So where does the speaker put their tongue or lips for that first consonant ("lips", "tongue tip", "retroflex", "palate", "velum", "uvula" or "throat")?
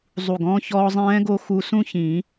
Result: tongue tip